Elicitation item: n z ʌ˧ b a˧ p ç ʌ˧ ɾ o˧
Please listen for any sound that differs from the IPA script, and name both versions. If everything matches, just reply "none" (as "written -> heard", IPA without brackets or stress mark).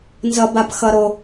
ç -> x